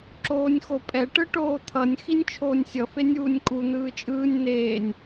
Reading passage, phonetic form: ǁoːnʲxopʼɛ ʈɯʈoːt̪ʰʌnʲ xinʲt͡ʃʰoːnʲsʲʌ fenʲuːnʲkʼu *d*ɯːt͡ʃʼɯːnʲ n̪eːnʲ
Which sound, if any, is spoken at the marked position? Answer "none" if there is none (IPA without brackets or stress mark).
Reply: n̪